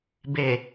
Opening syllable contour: low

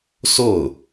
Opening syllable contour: falling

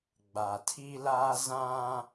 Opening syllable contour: low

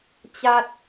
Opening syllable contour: high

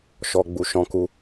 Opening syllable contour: low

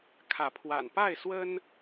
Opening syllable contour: rising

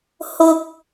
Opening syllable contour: high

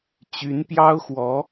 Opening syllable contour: rising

